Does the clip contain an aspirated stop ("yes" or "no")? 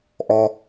no